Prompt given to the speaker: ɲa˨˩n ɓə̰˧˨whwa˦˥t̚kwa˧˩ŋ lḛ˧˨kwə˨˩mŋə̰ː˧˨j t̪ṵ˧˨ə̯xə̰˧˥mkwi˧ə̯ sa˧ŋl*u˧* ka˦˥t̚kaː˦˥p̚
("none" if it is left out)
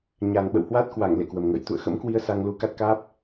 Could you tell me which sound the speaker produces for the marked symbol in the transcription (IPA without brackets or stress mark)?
u˧